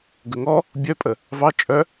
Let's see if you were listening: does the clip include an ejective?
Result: yes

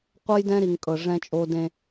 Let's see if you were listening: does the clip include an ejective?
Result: yes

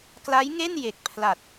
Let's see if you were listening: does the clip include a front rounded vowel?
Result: no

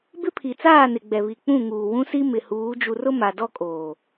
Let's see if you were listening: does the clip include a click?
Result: no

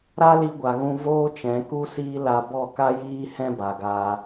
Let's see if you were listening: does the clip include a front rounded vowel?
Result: no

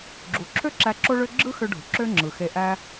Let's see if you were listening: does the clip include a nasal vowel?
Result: no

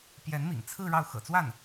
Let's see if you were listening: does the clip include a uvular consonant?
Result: no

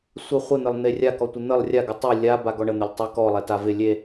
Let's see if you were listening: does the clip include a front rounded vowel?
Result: no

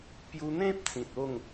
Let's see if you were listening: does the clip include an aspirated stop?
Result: no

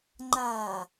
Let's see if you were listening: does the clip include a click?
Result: yes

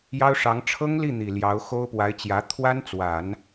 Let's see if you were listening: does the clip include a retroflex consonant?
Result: yes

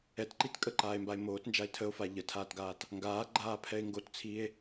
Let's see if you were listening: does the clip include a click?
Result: yes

